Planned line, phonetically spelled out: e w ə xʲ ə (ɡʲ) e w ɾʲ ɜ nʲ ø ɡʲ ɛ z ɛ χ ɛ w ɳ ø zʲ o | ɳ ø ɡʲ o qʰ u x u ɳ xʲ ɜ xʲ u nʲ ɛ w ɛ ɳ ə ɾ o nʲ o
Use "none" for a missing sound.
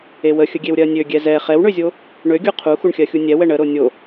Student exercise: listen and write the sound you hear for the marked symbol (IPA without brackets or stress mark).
ɡʲ